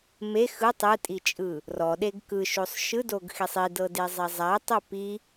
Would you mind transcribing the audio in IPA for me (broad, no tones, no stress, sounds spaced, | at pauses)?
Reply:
m e x ɯ tˤ ɯ tʼ i t͡ʃʼ ɯ | r ɔ ɗ e ɡ k ɯ ʃ o sˤ ʃ ɯ d o ɡ x i sˤ i d ɤ d e zˤ ɛ zˤ a tˤ o p i